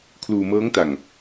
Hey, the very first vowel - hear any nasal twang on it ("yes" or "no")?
no